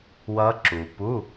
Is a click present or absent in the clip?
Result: present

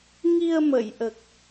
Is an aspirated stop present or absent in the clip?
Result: absent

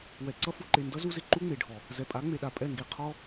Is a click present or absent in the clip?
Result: present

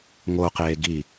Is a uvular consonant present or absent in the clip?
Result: present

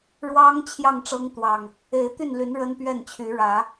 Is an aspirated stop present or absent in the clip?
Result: present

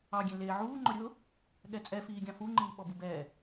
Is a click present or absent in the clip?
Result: present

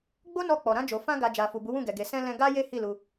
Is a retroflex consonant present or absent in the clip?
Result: absent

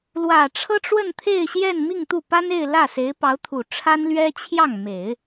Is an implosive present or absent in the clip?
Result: absent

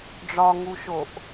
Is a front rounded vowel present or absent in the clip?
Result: absent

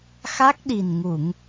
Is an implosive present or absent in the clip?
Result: present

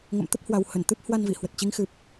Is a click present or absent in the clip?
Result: absent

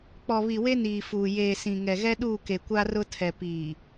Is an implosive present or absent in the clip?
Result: present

